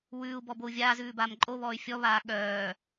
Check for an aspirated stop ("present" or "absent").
absent